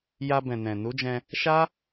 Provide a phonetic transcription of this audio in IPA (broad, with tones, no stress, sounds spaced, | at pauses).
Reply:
j a˧ b ɛ̃˨ n ɛ̃˨ n u˨˦ d͡ʒ ɛ̃˧ | ʃ a˦